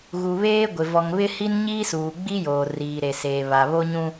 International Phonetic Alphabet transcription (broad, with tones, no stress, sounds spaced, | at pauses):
ɣ u˨ β eː˦ ɡʷ ɪ˨ v ɔ˨ ŋ β ɪ˦ h i˦ n ɲ iː˦ s uː˨ ɡ͡b i˦ j oː˨ r iː˨ ɾ e˨ s eː˨ β a˨ β o˦ ɲ ũ˦